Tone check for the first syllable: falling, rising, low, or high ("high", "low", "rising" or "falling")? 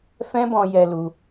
high